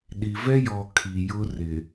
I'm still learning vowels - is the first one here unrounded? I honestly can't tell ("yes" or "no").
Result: yes